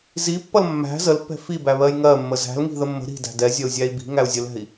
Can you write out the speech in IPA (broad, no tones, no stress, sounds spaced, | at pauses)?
z i pː ʌ l mː æ̤ z ə l pː ɛ̤ f i b æ β ɜ j ŋ ɜ mː ə z æ̤ l ŋ i̤ ð ə mː ə̤ ɾ i̤ d æ̤ d ɛ zʲ ɜ u̯ zʲ æ i̯ b i̤ ŋ æ u̯ zʲ ə l ɛ̤ i̯